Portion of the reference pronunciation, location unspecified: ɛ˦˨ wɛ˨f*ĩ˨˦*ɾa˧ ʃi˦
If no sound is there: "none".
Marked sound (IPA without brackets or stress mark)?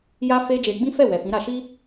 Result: ĩ˨˦